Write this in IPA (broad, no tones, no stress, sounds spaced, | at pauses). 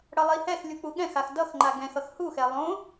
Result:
ɽ ʌ lˠ i h ɛ x lʲ u k͡p u ɠ ɛ̃ x a x d ʌ x ŋ͡ǃ a ɡ ɛ̃ x ʌ x h u x ɛ lˠ õ